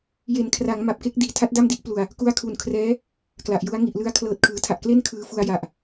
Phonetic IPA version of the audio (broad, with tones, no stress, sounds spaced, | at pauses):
j e˩˦ n kʰ r a˩˦ ŋ m a˨˩ p̚ k e˦˥ k̚ d iː˨˩ tʰ a˦˥ t̚ d a˥˩ m d i˥˩ ʔ p l u˨˩ a̯ | k u˧ a̯ kʰ u˨˩ n kʰ r ɛː˦˥ | k l a˨˩ ʔ j u˦˥ a̯ ŋ i˨˩ ʔ l ɯ˧ a̯ kʰ l ɤː˨˩ t̚ kʰ ɯː˩˦ tʰ a˨˩ ʔ k l e˥˩ n kʰ ɯː˧ f u˧ a̯ j a˨˩ ʔ